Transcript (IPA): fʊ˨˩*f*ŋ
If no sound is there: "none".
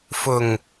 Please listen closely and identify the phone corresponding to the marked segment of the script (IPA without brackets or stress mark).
none